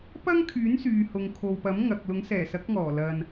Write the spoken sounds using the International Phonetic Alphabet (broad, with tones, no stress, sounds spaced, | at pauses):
p ɐ˥ ŋ kʰ yː˨˥ n s yː˨ h ʊ˨ ŋ kʰ o˨ w p ɐ˨˥ m ŋ ɐ˨ k̚ l ʊ˨˥ ŋ s ɛː˨˩ s ɐ˨˥ k̚ ŋ ɔː˨˩ l ɐ˨ n